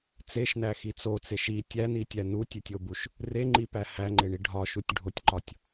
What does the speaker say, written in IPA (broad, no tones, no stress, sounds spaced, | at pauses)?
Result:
t͡s e ʃ n æ x i t͡s o t͡s e ʃ i tʲ æ n i tʲ æ n u tʲ e tʲ o b u ʃ | r e ŋ͡ǃ i p æ h æ ŋ͡ǃ e ɳ i ɖʱ ɒ ʃ u tʲ ɖʱ o tʲ ǃ ɒ tʲ